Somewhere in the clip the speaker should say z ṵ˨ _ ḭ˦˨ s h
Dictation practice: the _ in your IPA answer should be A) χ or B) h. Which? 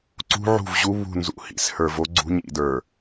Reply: B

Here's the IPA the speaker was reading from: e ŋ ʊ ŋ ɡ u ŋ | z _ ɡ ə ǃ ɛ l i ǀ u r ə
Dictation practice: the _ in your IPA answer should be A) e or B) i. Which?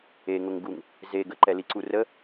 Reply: A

